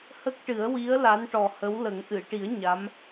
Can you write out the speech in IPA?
h ə˦˥ k̚ ʈ ɨ˨˩˦ ə̯ w i˧˥ ə̯ l a˧˥ n ʈ ɔ˨˩ h ə˧˥ w l ə˨˩˦ ŋ ʔ ɨ˨˩˨ ʈ i˨˩˦ ə̯ ɲ a˧˥ m

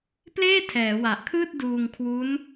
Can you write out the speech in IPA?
p l eː˥˩ tʰ ɛː˩˦ w a˨˩ ʔ kʰ ɯː˥˩ t̚ d uː˧ ŋ kʰ w u˦˥ n

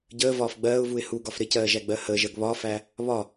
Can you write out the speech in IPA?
ɟ əː v ɒː f ɡ͡b ɜː ʊ̯ v u ɪ̯ h u ɡ ɒ f ɾ ɪ c ɜː ʒ æ ɡ͡b ɜ h əː ʒ ɜ ɡ β ɒː f æ | β ɒ

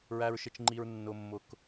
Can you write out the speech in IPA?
ɹ æ˧ ɹ ʃ ɪ˧ t͡ʃ ŋ͡ǃ i˧ ɹ nː ʊ˧ mː ʊ˧ k

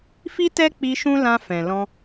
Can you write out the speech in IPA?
f i˦ t ɛ˦ k͡p i˧ ʃ ũ˦ l ã˧ f ɛ̃˨ l ɔ̃˧

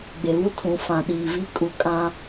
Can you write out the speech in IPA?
ɡ͡b e˨ β u˦ tʰ ũ˨ f ã˨ ɗ iː˨ v i˦ kʼ u˨ kʼ ã˦

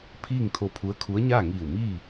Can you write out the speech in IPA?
pʰ iː˥˨ ŋ t̪ʰ o˧ pʰ u˧˥ ə̯ kʰ u˧˥ ə̯ ɲ a˥˨ ŋ iː˧˩ w m iː˥˨

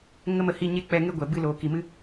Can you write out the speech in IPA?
ŋ ə˦ m ə˧ h i˦˨ ɲ e˦ k͡p ɛ˧ ŋ e˦ ɡʷ ɛ˨ b ɨ˧ l oː˨ k i˨ m ɨ˦

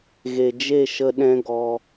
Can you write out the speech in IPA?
ɣ e˨ d͡ʒ e˦˨ ʃ ə˧ ɗ ɛ̃˦ ɡ ɔ˧

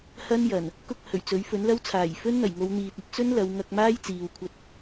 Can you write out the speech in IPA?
h ɐ˥ n j ɐ˨˩ n | k ʊ˥ k̚ h ɵ˨˩ ɥ t͡s ɵ˨˥ ɥ f ɵ˨˥ n l ɐ˥ w t͡sʰ aː˨˩ j f ɵ˥ n n̪ ɐ˨˩ j ŋ o˨˧ w n̪ iː˨ t̚ ɐ˧ t̚ t͡s ɵ˥ n l ɐ˨˧ w ŋ ɐ˧ k̚ m aː˥ j t͡s iː˨ w kʷʰ ɐ˧ t̚

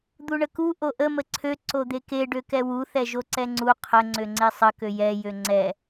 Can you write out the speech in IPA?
d̪ u ɳ ə k u ʔ o ʔ ə m ə ǀʰ ø ǀ o d̪ e k e ɖ ø k ɛ w u θ ɛ ʒ o ǀ ɛ ŋ͡ǀ u qʰ ə ŋ͡ǀ ø ŋ͡ǀ e sˤ ə k ø j ɛ j ø ŋ͡ǀ ɛ

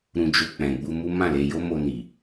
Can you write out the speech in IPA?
ɾ ũ˧ d͡ʒ o˧ k͡p ɛ̃˨ ɡ͡b u˧ m u˦ m ã˦˨ l e˧ j o˦ m o˧ n i˨

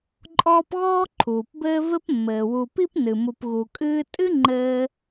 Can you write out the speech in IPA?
ǃʼ ɔː˦ p ɣ ɔː˥ ǃʰ uː˩ p b ɘː˦ v ɘ˦ p mː ɘː˩ w u˨ p i˥ p n ɨ˩ m u˨ p ɣ u˨ kʼ ɨː˦ tʼ ɨ˥ ŋ͡ǃ ɘː˦

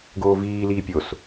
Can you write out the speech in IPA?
ɡ oː v iː l iː pʲ o s

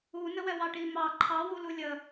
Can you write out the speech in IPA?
u n ə w ɛ w ɑ ʈ i m ɑ ǃʰ ɑ w u l u lʲ ə

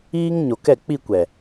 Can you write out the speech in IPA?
iː˦ ŋ ɲ o˨ k ɛ˦˨ k͡p i˦˨ kʷ ɛ˨

